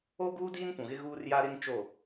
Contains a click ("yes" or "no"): no